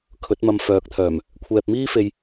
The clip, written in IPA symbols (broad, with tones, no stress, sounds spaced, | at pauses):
kʰ ɵ˨˥ t̚ m ɐ˧ m f œː˨˥ k̚ t̪ʰ œː˨˩ m | kʷʰ ɛː˧ p̚ m iː˥ f e˧ j